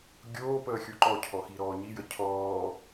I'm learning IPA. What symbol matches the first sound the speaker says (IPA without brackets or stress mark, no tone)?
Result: ɡʲ